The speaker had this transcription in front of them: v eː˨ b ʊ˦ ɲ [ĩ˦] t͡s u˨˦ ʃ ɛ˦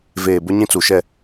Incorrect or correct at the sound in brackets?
correct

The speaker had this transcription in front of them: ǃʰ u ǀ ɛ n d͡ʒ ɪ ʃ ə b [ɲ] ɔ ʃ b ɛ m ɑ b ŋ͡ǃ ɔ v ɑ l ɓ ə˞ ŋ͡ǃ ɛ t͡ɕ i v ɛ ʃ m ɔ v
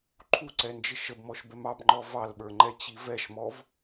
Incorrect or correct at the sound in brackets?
incorrect: m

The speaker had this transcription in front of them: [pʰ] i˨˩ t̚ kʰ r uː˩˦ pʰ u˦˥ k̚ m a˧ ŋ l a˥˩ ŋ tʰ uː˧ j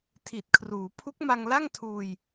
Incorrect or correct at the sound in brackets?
incorrect: tʰ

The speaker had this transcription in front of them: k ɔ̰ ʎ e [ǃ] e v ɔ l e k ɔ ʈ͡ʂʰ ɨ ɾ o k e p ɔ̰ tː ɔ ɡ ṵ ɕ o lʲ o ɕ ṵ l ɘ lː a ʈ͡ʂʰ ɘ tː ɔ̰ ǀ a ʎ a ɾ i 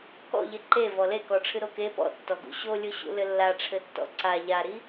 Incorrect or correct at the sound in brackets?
correct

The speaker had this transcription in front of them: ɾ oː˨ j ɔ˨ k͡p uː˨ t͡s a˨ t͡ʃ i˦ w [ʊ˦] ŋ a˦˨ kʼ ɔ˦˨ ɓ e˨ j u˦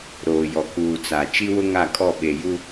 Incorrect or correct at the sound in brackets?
correct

